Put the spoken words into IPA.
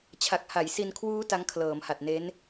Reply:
t͡ɕʰ a˨˩ k̚ h a˩˦ j s i˧ n kʰ w uː˦˥ t a˦˥ ŋ kʰ l ɤː˩˦ m h a˨˩ t̚ n e˦˥ n

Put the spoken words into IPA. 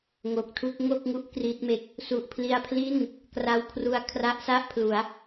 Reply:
ŋ o˨˩ k̚ tʰ u˥˩ k̚ ŋ o˥˩ k̚ ŋ u˥˩ ʔ k r i˦˥ t̚ m e˦˥ k̚ | s u˨˩ ʔ pʰ l i˧ a̯ pʰ l i˥˩ n | k r a˧ w kʰ r u˧ a̯ kʰ r a˦˥ ʔ s a˥˩ ʔ pʰ l u˩˦ a̯

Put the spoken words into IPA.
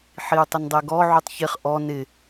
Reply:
ħ i u̯ tˤ ɪ n dˤ ɛ ɡ ɔ ʕ u tˤ ç ɪ χ ʔ ɔ n ɪ

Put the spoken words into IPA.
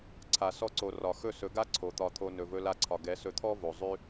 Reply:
ǀʰ a˨ s ɔ˧ ǀ o˨ r ɒ˨ x ɵ˦˨ s ɵ˨˦ ɡ a˦ ǀʰ o˨ t̪ ɒ˧ t̪ʰ o˧ n ɵ˨ v ɵ˧ l a˧ ǀʰ ɒ˨ ɡ ɛ˨˦ s ɵ˧ t̪ʰ ɔ˦ v o˨ zˤ ʉ˦

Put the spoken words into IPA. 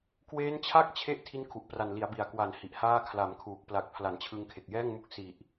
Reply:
k w eː˦˥ n t͡ɕʰ a˥˩ k̚ t͡ɕʰ e˥˩ ʔ tʰ i˦˥ n kʰ u˨˩ ʔ p r a˨˩ n l i˩˦ a̯ b i˨˩ a̯ k w a˨˩ n h i˨˩ ʔ h aː˥˩ kʰ l a˨˩ m kʰ uː˨˩ k̚ p l a˨˩ k̚ pʰ l a˩˦ n t͡ɕʰ ɯ˧ ŋ kʰ e˨˩ k̚ j ɛː˥˩ ŋ m u˦˥ k̚ s i˨˩ ʔ

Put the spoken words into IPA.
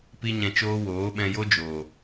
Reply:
p i˦ ɲ ɛ̃˧ t͡ʃ oː˦ w oː˨˦ ɓ ɛ̃˧ j o˦ d͡ʒ oː˨

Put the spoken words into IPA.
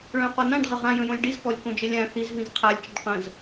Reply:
ɭ œ̃ q ɔ n ã ɖ ʁ ə ʁ ã j ə̃ j õ lʲ ɖ i z k ɔ lʲ k õ d͡ʒ ə lʲ ã θ i z v ĩ z qʰ a lʲ t͡ʃ ə ɖ q ə̃ z

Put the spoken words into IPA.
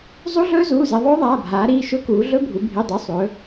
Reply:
zˤ u˦˥ ɮ ɵː˦˥ z uː˩˧˩ z e˩˧ ðˤ ɵː˦˥ ðˤ aː˩˧˩ bʱ aː˩˧ ɾ iː˩˧˩ ʃ ɵ˦˥ k uː˩˧ ɮ ɵ˦˥ bʱ u˩˧ bʱ i˩˧˩ dˤ u˩˧˩ sˤ ɵ˩˧

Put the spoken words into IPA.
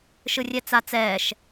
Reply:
ʃ ɯ rʲ ɛ t͡s a t͡s ɛː ʃ

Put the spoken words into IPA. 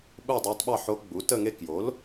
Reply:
ɓ u˥˧ dˤ ɑ˧˥ tˤ ɓ ɑ˥˧ ħ o˧˥ ɡ͡b u˩˥ t ə˥˧ ŋ e˥˧ k j o˩˥ l

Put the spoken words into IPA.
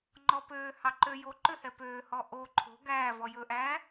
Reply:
ŋ͡ǃ ɔ p øː h ɑ ǃ ø j o ǃ ø h ɛ p øː h ɔ ʔ o ǃʰ o̤ ɡ æː v ɔ j ɵ ʔ æː

